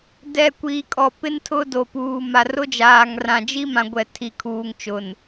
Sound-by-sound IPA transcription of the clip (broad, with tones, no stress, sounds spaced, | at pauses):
d ɛ˨ kʷ iː˨ kʼ ɔ˨ p ɪ˦ n tʰ ʊ˦ d o˨ p uː˨ m a˨ r ʊ˦ d͡ʒ aː˨ ŋ r ã˨ d͡ʒ i˦ m ã˨ ɡʷ ɛ˨ tʰ i˨ kʰ uː˨ ŋ t͡ʃ ʊ˨ n